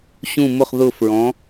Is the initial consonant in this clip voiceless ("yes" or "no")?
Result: yes